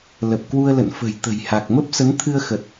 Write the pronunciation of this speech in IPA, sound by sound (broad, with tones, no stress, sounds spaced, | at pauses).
l ə˨˩ p̚ k w u˧ ə̯ l ə̰˧˨ n f ə̤˨˩ j t̪ ə̤˨˩ j h a˨˩ k̚ m ə˦˥ p̚ s ə˨˦ n t̪ʰ ɨ˧ ə̯ x ə˨˩ t̚